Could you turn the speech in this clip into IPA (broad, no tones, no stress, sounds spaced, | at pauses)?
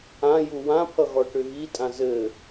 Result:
ã j u w ã pʰ ʌ ɣ ɔ ʈ ʏ ɣ i tʼ ã z ɘ